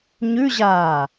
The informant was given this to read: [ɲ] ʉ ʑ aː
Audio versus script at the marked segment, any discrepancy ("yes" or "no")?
no